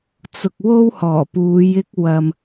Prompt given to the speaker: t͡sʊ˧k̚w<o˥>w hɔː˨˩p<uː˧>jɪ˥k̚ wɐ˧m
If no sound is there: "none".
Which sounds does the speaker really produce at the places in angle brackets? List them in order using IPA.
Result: o˥, uː˨˧

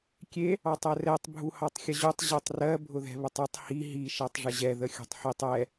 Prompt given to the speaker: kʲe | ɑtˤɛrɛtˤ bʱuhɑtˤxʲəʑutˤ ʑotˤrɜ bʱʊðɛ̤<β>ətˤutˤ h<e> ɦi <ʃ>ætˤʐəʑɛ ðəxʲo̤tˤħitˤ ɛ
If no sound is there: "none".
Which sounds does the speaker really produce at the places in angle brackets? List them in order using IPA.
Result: β, i, ʃ

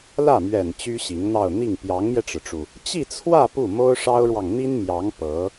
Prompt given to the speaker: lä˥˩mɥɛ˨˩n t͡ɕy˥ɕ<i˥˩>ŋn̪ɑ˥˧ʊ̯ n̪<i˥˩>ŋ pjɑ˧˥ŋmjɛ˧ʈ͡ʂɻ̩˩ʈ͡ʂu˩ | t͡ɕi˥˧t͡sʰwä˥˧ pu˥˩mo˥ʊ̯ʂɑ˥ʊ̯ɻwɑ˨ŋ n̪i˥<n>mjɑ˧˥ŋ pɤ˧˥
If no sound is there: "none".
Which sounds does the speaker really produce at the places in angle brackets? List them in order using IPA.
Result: i˧˥, i˥˩, n

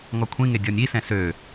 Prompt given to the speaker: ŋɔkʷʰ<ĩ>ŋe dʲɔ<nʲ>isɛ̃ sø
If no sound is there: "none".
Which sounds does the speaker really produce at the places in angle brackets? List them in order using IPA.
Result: ĩ, nʲ

